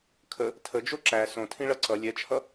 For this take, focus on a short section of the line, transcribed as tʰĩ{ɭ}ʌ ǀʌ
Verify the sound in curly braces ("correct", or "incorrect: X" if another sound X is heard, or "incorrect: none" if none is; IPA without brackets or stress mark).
correct